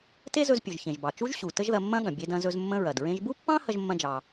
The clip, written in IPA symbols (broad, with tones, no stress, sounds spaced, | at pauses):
t e˥ z ɵ˧ z pʲ ɵ˩ ʒ ç ẽ˩ ʒ b ɑ˩ t͡ʃ u˥ ʒ ɕ u˩ t ə˥ ʒ ð ɐ˧ mː ɐ̃˥ ɠ ɐ̃˩ bʲ e˧ d ɐ̃˧ z ɵ˧ z mː ə̃˥ ɹ ɐ˩ d ɹ ẽ˧ ʒ b u˥ pː ɑ̃˥ h ɐ˥ ʒ mː ɐ̃˥ d͡ʒ ɑ˧